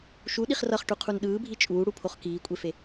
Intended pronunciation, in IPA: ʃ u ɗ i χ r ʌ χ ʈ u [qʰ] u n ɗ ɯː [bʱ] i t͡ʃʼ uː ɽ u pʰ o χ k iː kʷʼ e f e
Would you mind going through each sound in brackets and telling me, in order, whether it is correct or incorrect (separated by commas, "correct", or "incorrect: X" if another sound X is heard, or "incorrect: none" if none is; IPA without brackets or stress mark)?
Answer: correct, correct